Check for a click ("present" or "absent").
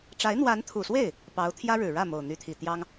absent